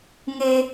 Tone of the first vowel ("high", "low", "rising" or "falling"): low